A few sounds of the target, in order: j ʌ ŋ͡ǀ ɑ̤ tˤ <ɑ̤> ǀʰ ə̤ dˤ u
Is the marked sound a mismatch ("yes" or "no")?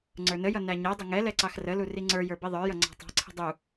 no